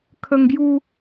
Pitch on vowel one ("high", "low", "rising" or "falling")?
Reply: high